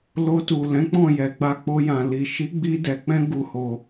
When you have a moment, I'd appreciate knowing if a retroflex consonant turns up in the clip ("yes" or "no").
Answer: no